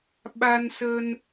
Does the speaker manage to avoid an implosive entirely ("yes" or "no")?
no